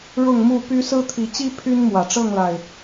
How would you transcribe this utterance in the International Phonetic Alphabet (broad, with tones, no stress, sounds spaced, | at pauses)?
ɻ ʊ˥˨ ŋ m u˥˨ p y˦ s ɹ̩˦ t̪ʰ i˨˦ t͡ɕ i˦ pʰ y˦ n m w ä˨˩ ʈ͡ʂ ɤ˥˨ ŋ l a˨˩ ɪ̯